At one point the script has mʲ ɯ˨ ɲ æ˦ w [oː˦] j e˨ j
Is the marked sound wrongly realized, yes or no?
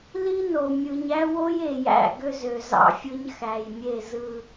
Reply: yes